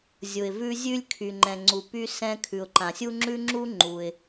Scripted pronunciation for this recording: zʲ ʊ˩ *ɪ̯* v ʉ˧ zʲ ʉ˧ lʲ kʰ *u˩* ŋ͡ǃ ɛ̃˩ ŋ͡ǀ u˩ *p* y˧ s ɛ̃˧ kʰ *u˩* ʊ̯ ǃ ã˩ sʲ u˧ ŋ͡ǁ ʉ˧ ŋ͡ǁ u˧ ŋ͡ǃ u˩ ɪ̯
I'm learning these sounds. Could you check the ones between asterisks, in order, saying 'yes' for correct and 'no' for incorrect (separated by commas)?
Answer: yes, no, yes, no